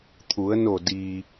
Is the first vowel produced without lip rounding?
no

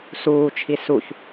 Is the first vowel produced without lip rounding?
no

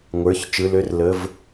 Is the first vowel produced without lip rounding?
yes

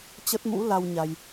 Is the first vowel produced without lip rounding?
yes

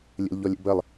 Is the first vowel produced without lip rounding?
yes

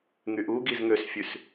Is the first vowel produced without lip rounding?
no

